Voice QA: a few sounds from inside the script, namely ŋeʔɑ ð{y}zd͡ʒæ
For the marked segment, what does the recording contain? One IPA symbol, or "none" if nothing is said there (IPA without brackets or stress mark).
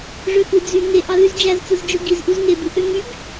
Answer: y